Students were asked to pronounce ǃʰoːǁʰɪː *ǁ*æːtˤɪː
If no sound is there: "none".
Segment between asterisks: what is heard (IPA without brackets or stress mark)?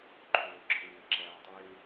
ǁ